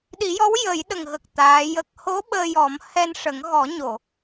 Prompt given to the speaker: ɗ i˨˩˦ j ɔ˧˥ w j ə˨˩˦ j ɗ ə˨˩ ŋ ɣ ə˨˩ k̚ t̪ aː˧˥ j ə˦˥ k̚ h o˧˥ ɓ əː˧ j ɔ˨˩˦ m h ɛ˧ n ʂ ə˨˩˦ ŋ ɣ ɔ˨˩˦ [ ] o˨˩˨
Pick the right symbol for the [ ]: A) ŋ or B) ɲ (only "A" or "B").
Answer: B